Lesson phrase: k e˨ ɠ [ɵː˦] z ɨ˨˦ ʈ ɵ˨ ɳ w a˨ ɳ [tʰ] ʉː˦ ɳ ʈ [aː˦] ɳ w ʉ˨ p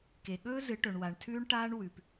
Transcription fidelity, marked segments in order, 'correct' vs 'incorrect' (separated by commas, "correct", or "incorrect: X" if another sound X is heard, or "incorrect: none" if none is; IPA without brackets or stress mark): correct, correct, correct